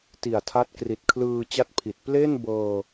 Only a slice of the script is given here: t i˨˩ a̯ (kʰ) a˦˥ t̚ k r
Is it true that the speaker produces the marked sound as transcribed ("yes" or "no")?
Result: no